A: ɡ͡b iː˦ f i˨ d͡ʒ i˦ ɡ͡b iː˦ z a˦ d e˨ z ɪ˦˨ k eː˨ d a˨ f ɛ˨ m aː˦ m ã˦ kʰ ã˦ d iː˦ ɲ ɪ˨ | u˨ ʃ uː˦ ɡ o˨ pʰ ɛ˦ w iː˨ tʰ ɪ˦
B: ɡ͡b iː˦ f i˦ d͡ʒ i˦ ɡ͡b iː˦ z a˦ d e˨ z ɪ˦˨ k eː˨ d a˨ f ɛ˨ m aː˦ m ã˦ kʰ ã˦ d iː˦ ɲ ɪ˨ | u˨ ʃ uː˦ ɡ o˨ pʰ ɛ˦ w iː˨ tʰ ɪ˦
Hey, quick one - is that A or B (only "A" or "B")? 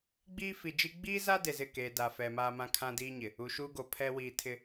A